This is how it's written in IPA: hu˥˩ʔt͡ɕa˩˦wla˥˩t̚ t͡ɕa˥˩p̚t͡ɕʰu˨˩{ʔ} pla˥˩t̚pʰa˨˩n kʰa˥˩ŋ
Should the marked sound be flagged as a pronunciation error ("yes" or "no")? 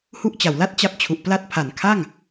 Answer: no